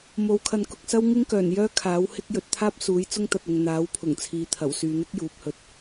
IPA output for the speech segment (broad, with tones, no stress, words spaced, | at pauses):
mo˨˧w kʰɐ˧nkʊ˧k̚sɐ˥w ŋɪ˥ŋkœː˨˩njœː˥ kʰaː˨˥whɪ˥k̚jɵ˧t̚ t̪ʰaː˥p̚suː˨˥j t͡sʊ˥ŋt̪ɐ˨t̚ʊ˨ŋ n̪aː˨˥w pʰʊ˨˩ŋt͡sʰiː˨t̪ʰɐ˨˩w syː˨n̪ɪ˥k̚ juː˨˥p̚hɵ˧t̚